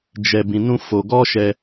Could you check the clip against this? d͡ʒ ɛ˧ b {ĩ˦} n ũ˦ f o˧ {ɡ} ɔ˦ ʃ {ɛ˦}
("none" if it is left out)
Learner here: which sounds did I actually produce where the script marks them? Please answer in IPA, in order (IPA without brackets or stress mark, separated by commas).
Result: ĩ˧, ɡ, ɛ˧